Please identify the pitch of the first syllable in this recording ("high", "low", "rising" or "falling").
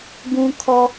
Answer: high